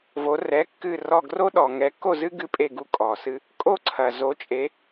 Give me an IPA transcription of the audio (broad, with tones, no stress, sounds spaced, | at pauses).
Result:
v o˧˥ r ɛ˧˥˧ kː ɨ˥˧ r ɔ˥˧ ɡ r o˥ ɗ ɔ˨ ŋ ɛ˧˥ kː o˥˧ z ɨ˥ ɡ ɨ˥ pʼ e˥˧ ɡ u˥˧ kʼ ɔ˨ s ɨ˥ | kʼ o˥˧ ǀʰ ɐ˨ z o˧˥ t͡ʃʼ e˧˥